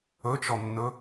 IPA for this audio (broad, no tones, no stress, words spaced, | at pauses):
ɵt͡ʃɔnːɵ